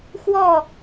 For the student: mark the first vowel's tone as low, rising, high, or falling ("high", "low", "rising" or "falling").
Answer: falling